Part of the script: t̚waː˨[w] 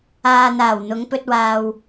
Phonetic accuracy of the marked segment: correct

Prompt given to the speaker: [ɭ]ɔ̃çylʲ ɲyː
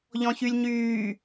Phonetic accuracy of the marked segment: incorrect: ʎ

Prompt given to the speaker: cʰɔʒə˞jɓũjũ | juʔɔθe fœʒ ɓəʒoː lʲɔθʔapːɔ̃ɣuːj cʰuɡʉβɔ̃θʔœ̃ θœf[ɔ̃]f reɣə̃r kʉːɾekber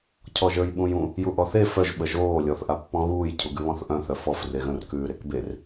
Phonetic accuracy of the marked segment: incorrect: ɔ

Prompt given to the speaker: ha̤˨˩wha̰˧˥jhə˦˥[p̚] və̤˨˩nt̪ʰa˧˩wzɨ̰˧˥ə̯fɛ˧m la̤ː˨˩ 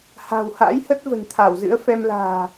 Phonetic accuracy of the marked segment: incorrect: t̚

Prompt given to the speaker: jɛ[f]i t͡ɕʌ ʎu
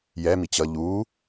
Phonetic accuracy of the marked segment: incorrect: m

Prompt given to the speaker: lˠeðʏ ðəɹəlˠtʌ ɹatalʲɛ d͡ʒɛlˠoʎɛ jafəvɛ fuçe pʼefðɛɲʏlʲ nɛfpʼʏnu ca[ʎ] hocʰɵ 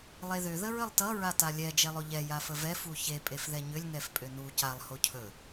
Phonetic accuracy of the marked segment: incorrect: lˠ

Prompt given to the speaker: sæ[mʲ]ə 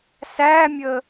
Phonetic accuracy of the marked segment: correct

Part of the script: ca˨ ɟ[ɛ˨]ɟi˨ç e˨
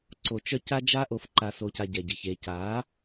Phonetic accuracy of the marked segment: correct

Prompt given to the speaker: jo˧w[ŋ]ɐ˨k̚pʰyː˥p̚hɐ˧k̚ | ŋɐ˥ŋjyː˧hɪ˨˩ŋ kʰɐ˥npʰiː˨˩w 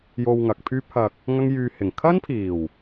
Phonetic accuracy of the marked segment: correct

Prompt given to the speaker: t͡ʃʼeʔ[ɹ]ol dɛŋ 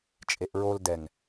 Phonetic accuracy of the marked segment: correct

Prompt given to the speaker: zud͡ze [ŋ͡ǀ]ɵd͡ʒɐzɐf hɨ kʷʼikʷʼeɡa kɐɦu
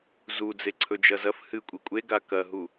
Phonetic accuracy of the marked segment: incorrect: ǀʰ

